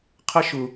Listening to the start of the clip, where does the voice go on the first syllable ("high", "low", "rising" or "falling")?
high